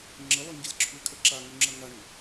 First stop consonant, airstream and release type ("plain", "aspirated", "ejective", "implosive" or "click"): click